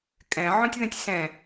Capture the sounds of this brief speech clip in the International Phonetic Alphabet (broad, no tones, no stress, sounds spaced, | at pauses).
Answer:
kʼ ɛ̃ ʕ õ tʲ ð ɛ̃ tʲ s ɛ̃